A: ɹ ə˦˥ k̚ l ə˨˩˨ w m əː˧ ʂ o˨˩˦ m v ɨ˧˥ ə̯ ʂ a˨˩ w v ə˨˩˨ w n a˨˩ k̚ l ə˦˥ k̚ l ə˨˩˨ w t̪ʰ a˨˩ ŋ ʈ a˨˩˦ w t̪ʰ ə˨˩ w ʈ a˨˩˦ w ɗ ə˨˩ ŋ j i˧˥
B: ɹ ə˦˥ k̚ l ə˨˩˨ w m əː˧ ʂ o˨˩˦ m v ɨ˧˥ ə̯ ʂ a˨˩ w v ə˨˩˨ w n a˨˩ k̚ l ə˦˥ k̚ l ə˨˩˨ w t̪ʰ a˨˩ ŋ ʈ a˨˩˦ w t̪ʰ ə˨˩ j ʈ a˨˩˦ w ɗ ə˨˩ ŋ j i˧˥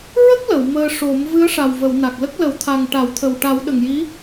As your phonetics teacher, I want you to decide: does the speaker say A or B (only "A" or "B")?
A